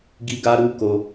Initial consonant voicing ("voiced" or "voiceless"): voiced